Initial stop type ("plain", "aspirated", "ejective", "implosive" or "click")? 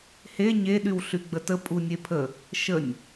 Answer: implosive